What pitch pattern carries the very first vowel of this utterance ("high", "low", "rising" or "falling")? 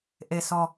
low